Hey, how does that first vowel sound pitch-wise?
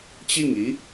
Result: falling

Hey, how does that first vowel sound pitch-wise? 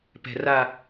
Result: low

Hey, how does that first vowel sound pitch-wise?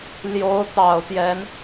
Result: rising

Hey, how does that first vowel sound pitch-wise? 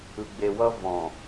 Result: low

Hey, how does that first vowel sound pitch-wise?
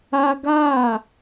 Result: high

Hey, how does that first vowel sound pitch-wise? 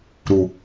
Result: low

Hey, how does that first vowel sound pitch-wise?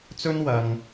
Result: high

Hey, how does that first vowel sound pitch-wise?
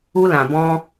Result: high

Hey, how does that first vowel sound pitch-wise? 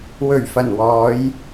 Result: low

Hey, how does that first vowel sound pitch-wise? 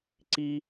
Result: high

